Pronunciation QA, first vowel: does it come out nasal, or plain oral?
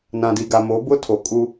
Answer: nasal